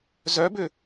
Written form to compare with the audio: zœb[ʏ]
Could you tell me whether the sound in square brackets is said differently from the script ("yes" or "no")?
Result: no